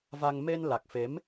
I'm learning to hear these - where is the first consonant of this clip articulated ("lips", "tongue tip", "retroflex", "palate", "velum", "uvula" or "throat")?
lips